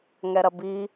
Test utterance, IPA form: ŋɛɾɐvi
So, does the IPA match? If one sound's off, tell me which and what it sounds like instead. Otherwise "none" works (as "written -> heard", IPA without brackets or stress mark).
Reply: v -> b